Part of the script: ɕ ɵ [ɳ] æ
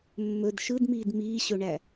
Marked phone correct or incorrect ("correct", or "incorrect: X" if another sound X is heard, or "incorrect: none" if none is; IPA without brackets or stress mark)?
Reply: correct